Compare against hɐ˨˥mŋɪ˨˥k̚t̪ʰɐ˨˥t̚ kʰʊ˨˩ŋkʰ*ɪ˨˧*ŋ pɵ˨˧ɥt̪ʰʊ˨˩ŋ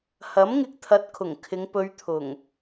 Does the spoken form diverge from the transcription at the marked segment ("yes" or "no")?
no